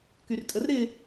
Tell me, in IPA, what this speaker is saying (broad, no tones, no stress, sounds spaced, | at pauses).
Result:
k y r tʼ ə r ɾ ɪ